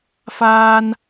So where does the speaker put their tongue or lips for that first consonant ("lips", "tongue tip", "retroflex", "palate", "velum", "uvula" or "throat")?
lips